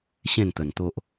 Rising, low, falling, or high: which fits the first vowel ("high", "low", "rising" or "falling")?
falling